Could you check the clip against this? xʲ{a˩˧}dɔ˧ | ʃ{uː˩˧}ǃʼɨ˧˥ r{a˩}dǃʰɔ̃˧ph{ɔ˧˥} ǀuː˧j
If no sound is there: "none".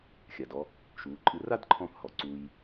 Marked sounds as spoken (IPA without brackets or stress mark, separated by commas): a˩, uː˩˧, a˥, ɔ˩